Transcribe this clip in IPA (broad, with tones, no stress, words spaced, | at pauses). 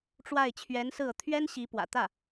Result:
ʈ͡ʂwa˥˩ɪ̯ t͡ɕʰɥɛ˧˥nsɹ̩˥˩ɤ˩ t̪ʰɥɛ˥n ɕi˧˥pwä̰˨˩ t̪ä˥˩